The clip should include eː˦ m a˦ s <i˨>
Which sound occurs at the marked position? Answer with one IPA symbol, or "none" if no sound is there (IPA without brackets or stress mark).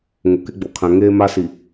i˨